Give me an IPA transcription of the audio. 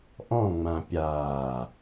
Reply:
ʔɔ̃ŋ͡mã pʲaː

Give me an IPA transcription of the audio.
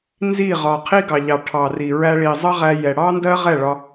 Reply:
nzi˦˨ʁɒ˨ qʰi˦ɡɑ˨ʎɑ˨ ʈʰɑ˨ri˨ ɹæ˧ɭi˨zˤʌ˦ʁæ˧ jɛ˨ɽɑ˦ndɜ˦ ʁɛ˦˨ɭɒ˧

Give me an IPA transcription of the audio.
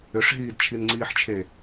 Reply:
ʏʂɦiːdt͡ʃʰinŋ͡ǀiːħ t͡ʃʰe

